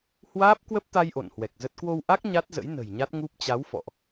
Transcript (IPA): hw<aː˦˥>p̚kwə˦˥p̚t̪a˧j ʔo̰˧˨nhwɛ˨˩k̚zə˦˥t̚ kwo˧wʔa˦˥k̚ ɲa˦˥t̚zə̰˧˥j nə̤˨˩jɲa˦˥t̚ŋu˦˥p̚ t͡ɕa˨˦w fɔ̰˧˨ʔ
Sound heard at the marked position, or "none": aː˦˥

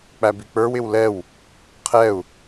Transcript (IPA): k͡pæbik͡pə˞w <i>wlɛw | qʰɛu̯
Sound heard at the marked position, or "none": ɪ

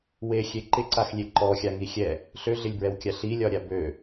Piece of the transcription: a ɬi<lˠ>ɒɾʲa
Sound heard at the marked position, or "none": lʲ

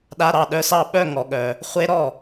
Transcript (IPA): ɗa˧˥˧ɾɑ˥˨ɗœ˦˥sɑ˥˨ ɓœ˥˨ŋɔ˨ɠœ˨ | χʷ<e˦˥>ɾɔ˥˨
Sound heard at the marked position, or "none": e˦˥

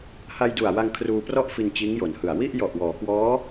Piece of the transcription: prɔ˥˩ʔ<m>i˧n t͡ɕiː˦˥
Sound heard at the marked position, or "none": f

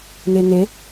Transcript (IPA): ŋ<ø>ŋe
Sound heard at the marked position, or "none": e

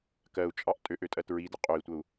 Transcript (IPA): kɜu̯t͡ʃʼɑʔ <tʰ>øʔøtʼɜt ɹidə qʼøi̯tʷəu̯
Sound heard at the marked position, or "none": tʼ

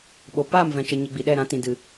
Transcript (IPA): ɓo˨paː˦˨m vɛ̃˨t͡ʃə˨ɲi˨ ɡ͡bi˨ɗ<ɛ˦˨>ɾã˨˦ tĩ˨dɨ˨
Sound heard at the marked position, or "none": ɛ˦˨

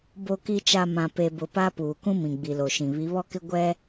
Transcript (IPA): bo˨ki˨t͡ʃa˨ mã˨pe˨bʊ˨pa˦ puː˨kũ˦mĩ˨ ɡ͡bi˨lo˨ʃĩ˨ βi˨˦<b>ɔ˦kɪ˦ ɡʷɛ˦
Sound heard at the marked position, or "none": β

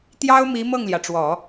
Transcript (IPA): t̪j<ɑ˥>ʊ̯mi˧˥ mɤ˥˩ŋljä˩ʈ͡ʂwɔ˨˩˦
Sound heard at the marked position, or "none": ɑ˥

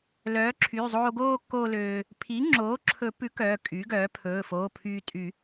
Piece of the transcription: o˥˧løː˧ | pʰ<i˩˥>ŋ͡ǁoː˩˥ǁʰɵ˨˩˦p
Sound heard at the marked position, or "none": i˩˥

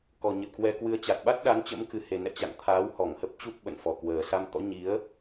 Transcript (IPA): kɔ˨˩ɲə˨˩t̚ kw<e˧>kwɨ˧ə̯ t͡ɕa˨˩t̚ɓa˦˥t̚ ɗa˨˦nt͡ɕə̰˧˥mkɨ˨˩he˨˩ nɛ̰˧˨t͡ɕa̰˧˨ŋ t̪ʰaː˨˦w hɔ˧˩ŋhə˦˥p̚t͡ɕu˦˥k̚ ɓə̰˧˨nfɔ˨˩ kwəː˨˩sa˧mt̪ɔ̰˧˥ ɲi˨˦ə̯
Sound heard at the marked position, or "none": ɛ˧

